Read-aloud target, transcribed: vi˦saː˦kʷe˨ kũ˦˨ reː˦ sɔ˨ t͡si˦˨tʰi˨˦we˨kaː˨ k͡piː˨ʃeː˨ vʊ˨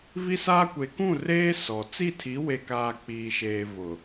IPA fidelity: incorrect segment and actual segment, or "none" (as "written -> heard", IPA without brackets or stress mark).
none